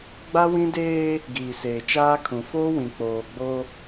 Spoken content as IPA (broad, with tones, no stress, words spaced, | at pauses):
ɡ͡ba˦wĩ˦deː˦ | ɡiː˨seː˨t͡ʃaː˦kʰũ˨ foː˦wĩ˨ k͡poː˨ɡ͡bo˦